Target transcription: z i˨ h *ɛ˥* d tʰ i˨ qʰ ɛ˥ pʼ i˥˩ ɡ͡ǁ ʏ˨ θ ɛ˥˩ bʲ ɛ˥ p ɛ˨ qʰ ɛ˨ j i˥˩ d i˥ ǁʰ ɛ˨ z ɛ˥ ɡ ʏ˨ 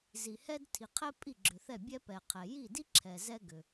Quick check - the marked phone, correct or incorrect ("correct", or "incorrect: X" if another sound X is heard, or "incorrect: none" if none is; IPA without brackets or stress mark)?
correct